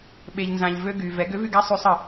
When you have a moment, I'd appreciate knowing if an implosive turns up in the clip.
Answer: yes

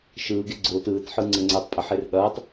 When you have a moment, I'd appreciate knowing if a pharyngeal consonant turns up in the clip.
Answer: yes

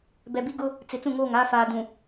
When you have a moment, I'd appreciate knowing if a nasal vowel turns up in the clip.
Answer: yes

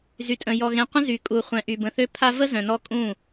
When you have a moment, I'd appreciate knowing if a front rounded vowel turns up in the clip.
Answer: yes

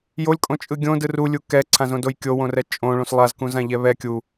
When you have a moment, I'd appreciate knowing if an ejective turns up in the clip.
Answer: yes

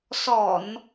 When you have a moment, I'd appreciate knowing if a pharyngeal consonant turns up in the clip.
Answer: no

